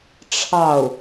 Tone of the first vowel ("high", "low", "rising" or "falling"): falling